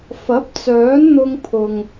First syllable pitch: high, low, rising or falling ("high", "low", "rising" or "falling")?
rising